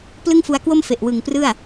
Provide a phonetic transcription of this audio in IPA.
plɯ˥˩ŋfu˧a̯kwo˥˩m fe˨˩ʔwɯ˨˩ŋprɯ˥˩a̯

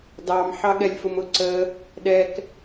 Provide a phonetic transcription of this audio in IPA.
dɑm ħɑɠɛlʲfʊmʊ ǀə | ɗɛk

